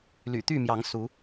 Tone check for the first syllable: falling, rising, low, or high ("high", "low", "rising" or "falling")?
low